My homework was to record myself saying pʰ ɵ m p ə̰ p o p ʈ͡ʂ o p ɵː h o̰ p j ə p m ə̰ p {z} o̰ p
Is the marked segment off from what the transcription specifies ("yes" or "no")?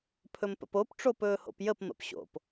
yes